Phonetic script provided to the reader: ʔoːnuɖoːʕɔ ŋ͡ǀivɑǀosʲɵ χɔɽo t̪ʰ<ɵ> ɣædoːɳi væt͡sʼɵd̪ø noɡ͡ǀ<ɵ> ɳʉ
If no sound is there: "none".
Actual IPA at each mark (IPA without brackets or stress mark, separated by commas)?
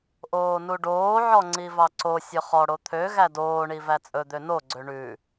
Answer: ø, ø